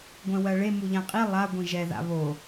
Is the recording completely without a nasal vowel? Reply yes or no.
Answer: no